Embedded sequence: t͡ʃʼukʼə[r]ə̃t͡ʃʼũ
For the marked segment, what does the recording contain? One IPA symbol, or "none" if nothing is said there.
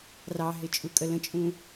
l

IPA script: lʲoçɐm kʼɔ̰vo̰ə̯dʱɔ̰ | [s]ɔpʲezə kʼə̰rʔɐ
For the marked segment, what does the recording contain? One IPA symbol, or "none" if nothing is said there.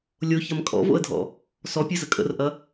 s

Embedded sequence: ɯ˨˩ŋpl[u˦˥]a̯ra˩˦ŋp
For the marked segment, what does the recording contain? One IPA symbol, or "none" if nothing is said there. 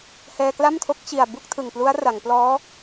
u˦˥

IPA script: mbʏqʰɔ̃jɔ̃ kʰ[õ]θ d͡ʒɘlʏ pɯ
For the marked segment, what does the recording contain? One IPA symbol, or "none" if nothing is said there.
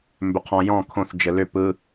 õ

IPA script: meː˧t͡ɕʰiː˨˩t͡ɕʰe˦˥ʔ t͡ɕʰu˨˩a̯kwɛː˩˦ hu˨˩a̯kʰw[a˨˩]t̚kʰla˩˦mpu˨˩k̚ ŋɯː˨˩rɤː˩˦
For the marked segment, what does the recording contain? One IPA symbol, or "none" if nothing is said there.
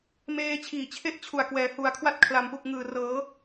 a˥˩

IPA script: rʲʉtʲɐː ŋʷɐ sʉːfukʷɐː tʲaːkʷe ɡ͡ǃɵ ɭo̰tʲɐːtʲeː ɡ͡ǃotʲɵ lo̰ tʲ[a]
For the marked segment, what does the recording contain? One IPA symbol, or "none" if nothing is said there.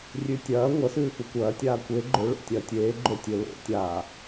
aː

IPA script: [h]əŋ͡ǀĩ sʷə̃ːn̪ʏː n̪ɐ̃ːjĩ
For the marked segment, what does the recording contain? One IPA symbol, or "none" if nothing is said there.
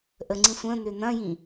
ʔ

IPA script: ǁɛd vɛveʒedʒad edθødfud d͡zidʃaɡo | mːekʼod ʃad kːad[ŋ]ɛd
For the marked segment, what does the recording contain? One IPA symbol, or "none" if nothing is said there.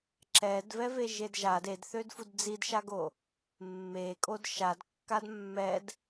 mː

